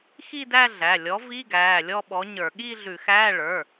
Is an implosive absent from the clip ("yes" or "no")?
no